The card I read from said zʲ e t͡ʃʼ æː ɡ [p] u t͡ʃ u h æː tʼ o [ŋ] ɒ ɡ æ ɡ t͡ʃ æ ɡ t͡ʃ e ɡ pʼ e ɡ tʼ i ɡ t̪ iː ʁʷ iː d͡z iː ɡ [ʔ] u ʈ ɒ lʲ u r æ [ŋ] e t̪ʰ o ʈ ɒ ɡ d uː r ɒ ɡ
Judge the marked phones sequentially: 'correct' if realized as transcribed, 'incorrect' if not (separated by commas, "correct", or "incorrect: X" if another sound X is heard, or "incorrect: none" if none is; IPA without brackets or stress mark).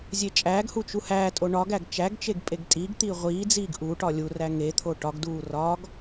incorrect: h, incorrect: ɳ, correct, correct